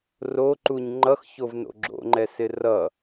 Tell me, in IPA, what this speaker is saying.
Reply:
r o ǃ u ɲ ŋ͡ǃ ʌ x ç o v n o̰ ɡ͡ǁ o̰ ŋ͡ǃ ɛ s ɪ r ʌ

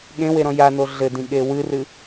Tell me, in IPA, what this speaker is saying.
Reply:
ɠ ẽ w e ɾ ɔ̃ j a n o ɮ ɘ d ĩ ɠ e w ɨ r ɨ

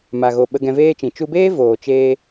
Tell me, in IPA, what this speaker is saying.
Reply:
m a˨ ɣ o˨ ɓ ə˧ ɡ ɛ̃˧ v eː˦ t͡ʃ ĩ˨ t͡ʃ u˧ b eː˦ v oː˨ t͡ʃ eː˧

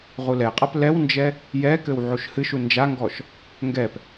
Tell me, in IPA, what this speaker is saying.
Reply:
ʁ u l ɛ qʼ a p l ɛ w n d͡ʒ ɛ | j ɛ k ɘ w ʕ u ʃ h ɨ ʃ u n d͡ʒ a ŋ ɡ ɔ ʃ | ŋ ɡ ɛ p

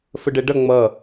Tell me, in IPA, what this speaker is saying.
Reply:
f ə ɖ ɛ ɖ ʌ ŋ͡m ʌ

